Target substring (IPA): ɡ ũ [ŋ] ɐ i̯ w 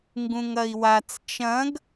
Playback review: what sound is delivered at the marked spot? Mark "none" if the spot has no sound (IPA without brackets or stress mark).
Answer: ŋ